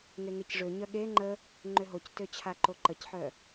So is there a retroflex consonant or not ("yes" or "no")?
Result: yes